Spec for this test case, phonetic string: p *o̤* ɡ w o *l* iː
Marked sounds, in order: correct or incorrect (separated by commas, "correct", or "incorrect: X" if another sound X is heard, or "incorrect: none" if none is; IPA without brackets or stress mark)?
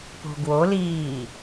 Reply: correct, correct